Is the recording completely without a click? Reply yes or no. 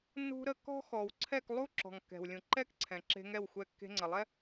no